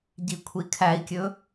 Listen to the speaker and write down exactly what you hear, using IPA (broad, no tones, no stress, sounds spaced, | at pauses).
ɟ i kʷʰ i kʰ æ i̯ kʲ ɵ